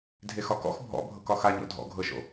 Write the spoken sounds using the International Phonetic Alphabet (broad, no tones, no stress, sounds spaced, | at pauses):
dʱ e x ɒ k ɔ̰ x bʱ ɔ̰ bʱ ɤ k ɒ x a ɲ ɔ̰ dʱ ɔ̰ ɡʱ ɤ ʃ o̰